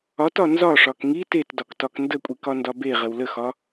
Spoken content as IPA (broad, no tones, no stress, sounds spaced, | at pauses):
ɒ t ɒ n z ɒ ʂ ɒ k ŋ i t e t d ɒ k t ɒ k n d ə kʷʼ i k ɒ n d ɒ b e ʁ ə w l ə x ɒ